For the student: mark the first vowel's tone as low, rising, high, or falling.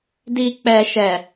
low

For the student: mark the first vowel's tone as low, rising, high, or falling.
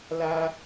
high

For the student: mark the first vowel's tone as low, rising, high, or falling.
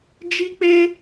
high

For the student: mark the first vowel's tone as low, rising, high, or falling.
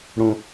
high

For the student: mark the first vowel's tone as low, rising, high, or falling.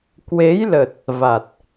rising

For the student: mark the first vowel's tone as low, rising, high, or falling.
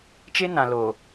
high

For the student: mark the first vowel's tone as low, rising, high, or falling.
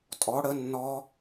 rising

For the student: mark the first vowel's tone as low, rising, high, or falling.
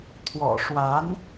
low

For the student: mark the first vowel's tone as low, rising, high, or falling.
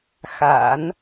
low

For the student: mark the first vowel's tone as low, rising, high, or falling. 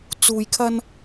low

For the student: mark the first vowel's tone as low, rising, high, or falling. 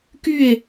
falling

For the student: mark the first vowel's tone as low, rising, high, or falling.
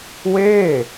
falling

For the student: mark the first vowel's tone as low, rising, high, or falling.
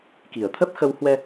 low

